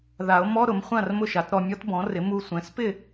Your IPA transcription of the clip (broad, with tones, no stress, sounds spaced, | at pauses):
ð a˨˩˦ o̯ m ɔ˧˥˧ ɾ ʊ˩˥ m χʷ ã˥˨ r m ʊ˥˨ ʃ a˩˥ t ɾ ɔ˧ mʲ ɔ˦˥ t b ɔ̃˩˥ r ɪ˩˥ m u˧ sʷ ɛ̃˩˥ s p ɪ˥˨